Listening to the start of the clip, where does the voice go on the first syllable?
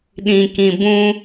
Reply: low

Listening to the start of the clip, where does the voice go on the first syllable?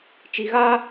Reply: low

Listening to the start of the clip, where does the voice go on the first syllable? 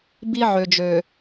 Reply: high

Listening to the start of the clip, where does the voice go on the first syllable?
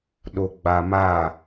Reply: low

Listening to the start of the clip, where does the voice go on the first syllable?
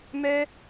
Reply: high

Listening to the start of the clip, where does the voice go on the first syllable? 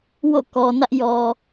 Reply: falling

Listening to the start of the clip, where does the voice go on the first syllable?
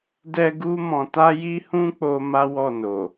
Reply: high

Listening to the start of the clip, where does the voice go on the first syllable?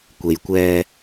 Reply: low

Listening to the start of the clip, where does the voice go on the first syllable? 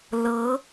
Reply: rising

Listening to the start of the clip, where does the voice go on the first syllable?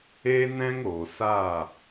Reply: high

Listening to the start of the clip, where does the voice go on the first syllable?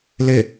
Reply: falling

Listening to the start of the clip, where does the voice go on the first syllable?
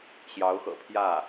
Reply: rising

